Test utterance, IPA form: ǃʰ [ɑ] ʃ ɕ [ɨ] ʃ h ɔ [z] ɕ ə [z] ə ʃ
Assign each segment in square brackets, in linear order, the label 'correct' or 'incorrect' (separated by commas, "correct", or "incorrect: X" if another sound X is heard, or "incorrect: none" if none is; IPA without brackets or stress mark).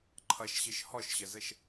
incorrect: ʌ, correct, incorrect: ʃ, correct